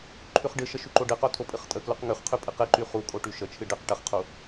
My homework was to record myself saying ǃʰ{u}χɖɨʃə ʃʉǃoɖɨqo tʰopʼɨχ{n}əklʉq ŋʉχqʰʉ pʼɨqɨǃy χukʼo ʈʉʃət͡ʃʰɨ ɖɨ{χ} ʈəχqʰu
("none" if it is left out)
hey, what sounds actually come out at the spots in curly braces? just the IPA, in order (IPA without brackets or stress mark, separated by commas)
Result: ʉ, tʼ, q